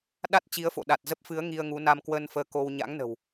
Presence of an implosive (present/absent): present